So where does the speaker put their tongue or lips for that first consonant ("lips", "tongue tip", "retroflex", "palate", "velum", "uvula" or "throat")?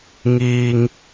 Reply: velum